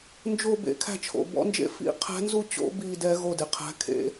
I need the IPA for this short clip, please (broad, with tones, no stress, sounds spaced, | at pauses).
n d͡ʒ o˧˩ b ḛ˧˥ kʰ æ̤˥˨ t͡ʃʰ o̰˧˩ b ɔ̰˧˥ n d͡ʒ ḛ˥˨ f ḭ˥˨ qʰ æ̤˧˥ n z u˥˨ t͡ɕ o̰˧˥ b i˥˨ d ɛ˧˥ ɣ o˥˨ d e˩ qʰ æ̤˧˥ kʰ ḛ˧˥